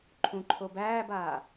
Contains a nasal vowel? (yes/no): yes